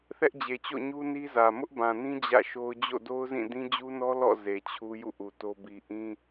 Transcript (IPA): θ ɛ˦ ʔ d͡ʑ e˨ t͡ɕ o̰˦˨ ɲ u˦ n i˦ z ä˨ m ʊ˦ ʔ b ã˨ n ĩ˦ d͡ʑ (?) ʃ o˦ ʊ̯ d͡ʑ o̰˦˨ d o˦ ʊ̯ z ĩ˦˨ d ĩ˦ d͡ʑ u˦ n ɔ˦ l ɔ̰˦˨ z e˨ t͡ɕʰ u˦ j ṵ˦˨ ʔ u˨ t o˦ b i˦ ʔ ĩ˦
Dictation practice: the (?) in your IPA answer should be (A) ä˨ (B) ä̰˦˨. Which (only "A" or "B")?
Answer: B